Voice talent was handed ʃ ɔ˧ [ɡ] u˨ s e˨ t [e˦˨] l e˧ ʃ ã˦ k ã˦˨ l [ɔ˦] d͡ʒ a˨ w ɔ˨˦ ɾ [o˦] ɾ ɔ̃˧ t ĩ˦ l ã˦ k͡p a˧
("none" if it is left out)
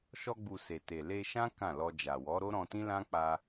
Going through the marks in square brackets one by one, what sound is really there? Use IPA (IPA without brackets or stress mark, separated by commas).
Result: ɡ͡b, e˨, ɔ˧, o˦